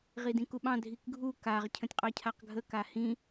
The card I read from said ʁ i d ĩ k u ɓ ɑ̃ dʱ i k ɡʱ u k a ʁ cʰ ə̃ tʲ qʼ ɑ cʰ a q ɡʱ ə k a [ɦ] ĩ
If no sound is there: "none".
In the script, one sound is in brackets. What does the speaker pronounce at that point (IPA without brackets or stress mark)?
h